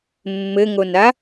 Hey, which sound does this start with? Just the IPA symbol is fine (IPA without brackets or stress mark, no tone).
mː